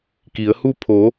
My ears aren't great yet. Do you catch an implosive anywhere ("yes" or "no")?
no